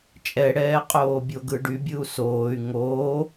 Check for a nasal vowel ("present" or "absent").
absent